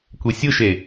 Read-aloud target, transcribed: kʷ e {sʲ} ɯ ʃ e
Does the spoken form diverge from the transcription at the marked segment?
no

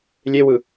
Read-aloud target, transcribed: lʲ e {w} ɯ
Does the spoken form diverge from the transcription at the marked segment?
no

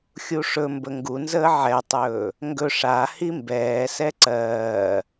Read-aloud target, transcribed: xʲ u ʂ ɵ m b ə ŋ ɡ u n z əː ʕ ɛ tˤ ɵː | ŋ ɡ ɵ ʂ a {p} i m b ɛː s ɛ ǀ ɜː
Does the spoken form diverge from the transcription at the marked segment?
yes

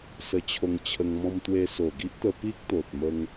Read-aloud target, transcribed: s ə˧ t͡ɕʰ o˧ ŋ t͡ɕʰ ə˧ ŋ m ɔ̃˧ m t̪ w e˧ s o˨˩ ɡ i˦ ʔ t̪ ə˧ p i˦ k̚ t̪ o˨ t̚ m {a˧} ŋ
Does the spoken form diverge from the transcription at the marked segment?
yes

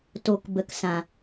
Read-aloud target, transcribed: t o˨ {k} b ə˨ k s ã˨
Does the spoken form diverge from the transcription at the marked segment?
no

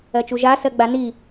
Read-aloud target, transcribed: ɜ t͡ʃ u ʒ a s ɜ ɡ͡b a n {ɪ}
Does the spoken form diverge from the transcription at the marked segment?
yes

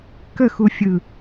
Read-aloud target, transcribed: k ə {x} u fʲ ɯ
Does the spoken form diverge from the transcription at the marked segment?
no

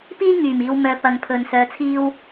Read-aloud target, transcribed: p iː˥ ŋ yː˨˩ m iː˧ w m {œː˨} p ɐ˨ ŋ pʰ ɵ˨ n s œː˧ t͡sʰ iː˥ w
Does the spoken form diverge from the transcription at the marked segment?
yes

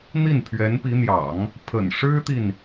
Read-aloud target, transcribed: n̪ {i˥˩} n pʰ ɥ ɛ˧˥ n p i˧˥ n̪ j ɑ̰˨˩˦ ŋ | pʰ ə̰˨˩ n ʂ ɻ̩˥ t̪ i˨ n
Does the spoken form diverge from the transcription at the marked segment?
no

